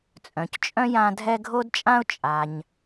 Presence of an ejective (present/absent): present